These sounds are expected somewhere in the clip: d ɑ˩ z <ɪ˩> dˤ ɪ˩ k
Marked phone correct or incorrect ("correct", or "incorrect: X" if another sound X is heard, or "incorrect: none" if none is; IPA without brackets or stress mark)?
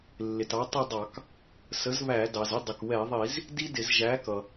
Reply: incorrect: ɪ˥˧